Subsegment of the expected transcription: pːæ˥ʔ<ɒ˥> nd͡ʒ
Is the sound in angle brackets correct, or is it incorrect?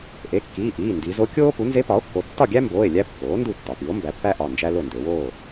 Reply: incorrect